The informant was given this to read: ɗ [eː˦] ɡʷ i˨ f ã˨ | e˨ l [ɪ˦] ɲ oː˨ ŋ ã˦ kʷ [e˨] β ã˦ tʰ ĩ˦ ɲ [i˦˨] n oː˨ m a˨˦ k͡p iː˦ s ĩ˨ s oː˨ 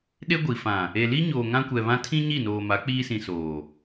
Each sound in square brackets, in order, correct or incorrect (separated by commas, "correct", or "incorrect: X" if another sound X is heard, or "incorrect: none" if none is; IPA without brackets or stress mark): incorrect: e˦, incorrect: i˦, incorrect: ɛ˨, correct